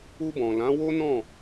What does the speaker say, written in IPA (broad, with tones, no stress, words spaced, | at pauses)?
u˧bɔ̃˨ lã˨˦wo˦nɔ̃˦˨